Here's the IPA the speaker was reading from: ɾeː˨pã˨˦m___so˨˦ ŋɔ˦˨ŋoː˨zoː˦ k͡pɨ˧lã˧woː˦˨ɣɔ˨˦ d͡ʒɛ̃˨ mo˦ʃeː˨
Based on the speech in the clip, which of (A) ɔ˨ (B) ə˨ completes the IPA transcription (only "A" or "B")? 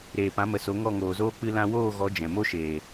B